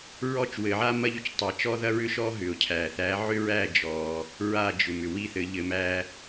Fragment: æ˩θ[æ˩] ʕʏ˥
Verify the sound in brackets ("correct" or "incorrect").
incorrect